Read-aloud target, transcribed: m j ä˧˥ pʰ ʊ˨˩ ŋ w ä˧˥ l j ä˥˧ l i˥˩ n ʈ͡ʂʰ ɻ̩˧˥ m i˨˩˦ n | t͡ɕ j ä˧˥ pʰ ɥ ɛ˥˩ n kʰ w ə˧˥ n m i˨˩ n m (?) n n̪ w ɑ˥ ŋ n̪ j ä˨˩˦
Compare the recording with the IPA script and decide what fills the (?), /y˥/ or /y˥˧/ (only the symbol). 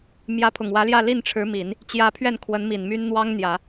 y˥